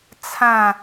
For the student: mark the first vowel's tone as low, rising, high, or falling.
falling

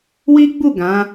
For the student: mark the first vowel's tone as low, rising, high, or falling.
high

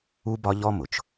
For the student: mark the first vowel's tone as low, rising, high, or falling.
high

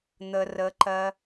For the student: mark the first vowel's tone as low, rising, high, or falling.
low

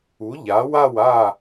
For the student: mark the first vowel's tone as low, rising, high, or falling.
rising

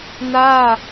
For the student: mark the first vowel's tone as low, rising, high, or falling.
falling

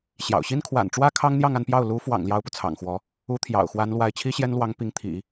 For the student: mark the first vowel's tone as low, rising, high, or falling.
low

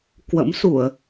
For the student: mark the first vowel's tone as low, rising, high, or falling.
rising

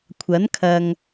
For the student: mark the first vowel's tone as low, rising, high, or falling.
rising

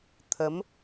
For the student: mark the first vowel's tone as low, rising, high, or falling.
rising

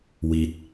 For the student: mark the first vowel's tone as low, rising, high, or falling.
low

